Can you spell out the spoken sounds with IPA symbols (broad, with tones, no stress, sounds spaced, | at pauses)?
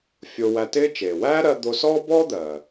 fʲ o˧ w æ˧ t ɪː˥ t͡ʃ eː˩ w æː˥ ɾ ɜ˧ d̪ o˧ s ɔː˥ b ɔː˥ d̪ ɜ˩